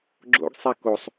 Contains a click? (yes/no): yes